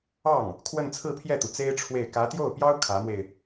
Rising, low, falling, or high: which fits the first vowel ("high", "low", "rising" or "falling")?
falling